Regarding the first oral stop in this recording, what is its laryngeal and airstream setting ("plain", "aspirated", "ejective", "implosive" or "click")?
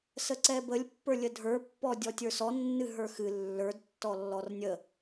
click